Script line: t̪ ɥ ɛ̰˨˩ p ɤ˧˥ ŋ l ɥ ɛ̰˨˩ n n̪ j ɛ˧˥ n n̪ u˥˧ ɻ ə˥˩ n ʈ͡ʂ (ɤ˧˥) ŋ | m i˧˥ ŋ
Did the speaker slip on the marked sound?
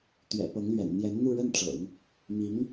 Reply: yes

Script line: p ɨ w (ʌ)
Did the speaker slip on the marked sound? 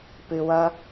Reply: no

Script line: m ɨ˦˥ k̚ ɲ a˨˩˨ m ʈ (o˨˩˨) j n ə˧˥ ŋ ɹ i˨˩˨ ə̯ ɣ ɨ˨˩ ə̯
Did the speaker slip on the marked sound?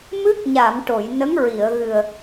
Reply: no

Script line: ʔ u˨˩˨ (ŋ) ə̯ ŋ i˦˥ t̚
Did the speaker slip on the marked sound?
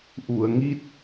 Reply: yes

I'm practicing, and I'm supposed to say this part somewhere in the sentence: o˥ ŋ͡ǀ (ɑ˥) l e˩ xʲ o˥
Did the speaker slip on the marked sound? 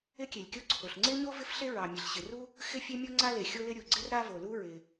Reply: yes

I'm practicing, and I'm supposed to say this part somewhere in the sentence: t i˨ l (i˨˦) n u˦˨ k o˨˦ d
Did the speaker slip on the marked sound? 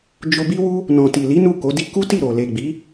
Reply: no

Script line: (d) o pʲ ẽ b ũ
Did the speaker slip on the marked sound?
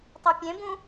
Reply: yes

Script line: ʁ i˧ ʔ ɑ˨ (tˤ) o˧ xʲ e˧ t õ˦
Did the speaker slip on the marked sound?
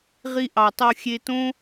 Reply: no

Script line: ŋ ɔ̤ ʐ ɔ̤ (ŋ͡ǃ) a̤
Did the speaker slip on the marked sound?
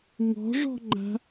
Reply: no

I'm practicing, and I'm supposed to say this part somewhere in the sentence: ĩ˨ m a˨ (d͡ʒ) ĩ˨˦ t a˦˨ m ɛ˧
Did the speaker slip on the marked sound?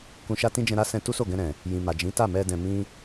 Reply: no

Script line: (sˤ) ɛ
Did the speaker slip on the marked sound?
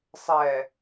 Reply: no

